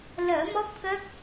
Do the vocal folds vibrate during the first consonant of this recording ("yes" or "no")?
yes